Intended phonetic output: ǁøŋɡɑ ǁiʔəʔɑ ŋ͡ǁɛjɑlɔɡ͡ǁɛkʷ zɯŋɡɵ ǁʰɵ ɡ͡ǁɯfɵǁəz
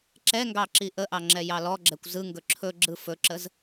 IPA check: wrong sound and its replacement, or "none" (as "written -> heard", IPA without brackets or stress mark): ø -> ɛ